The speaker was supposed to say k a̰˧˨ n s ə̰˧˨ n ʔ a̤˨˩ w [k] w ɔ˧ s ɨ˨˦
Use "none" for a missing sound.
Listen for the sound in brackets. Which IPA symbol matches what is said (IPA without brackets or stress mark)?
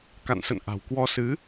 k